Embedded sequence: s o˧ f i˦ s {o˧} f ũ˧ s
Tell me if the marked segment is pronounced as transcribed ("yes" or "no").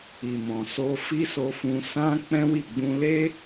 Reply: yes